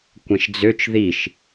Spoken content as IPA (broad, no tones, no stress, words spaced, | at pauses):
kʷɛ̃ʃd͡zøt͡ʃ ðiʃ